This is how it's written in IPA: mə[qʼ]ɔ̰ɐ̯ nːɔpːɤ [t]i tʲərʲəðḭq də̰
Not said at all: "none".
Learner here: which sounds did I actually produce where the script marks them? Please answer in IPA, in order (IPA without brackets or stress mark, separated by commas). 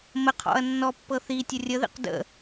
qʰ, θ